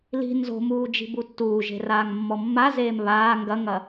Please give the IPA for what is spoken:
l i̤ n z o̤ m uː d͡ʒ i̤ b u tː uː ʒ e̤ r aː ŋ mː ɔ mː a z eː m β aː ŋ ɡ ɐ ŋ ɐ

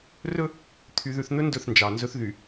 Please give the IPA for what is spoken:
r ɵ˦ | t̪ʰ y˨ ð ʉ˨ θ n̪ ɵ˦ n d ɵ˦˨ θ n d͡ʒ ɑ˨ n z ɵ˦ θ ð y˨

